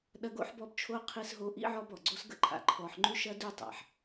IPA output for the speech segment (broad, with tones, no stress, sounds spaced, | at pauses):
ɗ ɐ˦ ɡ o̰˥ ħ b ɔ˦ b t͡ʃʰ o˦ qʰ i˦ s ɦ o˦ ʔ ḭ˥ ʕ ɔ˦ b ɔ˩ ɡ͡ǀ o˦ s ɡ ə̰˥ ǃʰ a̰˨ ǃʰ ɔ˨ ħ ŋ͡ǃ ʉ˦ ʃ ɐ˦ d ʉ˥ tˤ a̰˩ ħ